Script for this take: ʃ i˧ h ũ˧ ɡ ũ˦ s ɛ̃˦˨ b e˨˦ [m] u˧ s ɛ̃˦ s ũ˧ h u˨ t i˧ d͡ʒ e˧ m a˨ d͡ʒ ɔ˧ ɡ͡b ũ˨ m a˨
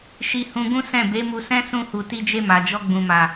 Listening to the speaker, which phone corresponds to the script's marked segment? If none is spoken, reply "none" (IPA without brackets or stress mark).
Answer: m